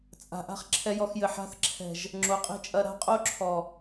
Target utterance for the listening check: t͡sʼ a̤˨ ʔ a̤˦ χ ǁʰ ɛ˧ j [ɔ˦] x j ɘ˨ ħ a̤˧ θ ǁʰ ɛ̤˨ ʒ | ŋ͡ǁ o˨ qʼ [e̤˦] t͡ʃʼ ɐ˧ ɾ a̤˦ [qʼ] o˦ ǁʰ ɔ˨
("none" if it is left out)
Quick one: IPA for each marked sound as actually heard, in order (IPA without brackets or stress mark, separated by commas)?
ɔ˧, e̤˦, qʼ